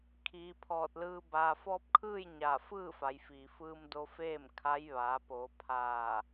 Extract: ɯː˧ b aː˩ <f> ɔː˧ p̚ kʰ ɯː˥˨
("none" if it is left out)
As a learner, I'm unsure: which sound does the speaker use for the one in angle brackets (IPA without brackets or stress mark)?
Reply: f